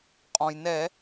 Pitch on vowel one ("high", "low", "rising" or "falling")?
low